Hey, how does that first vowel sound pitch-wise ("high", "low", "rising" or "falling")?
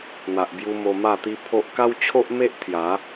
low